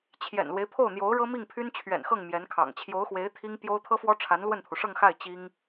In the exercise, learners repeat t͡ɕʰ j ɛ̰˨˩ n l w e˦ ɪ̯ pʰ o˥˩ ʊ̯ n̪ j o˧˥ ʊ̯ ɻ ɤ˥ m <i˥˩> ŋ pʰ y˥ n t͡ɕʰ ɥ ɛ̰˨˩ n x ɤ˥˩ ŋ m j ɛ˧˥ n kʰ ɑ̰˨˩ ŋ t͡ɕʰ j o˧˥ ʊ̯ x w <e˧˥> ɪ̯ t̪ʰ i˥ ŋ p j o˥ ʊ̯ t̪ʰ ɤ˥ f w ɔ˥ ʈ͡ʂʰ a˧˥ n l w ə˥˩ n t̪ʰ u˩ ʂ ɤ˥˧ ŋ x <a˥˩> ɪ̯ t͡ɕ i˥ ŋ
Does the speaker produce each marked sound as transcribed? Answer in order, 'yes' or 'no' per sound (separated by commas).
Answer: yes, yes, yes